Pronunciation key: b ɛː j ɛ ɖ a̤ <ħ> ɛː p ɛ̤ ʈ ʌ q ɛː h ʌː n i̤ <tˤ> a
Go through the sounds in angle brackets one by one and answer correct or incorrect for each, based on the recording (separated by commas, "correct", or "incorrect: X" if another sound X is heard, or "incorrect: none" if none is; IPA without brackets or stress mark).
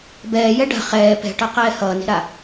incorrect: χ, incorrect: ɾ